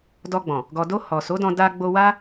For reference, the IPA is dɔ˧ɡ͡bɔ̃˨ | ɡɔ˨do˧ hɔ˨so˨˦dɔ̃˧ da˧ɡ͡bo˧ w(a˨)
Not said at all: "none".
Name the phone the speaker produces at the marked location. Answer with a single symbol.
a˦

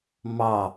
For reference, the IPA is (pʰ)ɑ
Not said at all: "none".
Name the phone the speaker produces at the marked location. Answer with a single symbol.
m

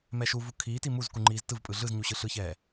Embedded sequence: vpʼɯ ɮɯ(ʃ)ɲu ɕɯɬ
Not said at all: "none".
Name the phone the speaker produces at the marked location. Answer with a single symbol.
z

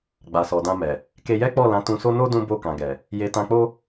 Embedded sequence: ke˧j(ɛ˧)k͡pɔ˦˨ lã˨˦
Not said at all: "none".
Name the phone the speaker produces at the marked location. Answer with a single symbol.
ɛ˦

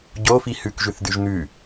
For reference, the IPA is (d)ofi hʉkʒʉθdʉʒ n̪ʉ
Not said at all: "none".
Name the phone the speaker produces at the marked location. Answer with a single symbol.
ɟ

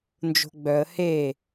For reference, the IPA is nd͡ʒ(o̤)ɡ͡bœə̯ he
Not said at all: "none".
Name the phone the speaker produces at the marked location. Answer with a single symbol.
o̤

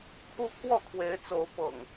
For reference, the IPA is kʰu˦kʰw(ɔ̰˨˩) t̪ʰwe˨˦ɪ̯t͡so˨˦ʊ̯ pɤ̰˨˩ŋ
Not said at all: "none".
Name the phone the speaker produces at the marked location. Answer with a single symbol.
ɔ˥˨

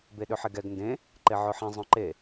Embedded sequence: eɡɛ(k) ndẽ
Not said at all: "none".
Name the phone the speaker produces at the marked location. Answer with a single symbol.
ɡ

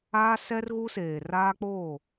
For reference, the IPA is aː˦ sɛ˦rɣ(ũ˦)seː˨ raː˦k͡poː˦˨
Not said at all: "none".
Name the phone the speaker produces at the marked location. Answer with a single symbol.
u˦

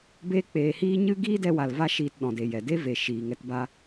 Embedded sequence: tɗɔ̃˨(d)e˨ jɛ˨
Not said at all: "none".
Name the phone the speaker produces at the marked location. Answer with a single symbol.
d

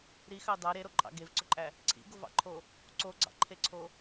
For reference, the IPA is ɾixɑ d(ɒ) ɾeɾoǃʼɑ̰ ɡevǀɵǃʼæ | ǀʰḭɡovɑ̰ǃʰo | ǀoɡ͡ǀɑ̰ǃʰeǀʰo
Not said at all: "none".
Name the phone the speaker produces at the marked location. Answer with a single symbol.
ɑ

